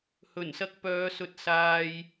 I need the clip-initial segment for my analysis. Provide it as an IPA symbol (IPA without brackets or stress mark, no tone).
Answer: h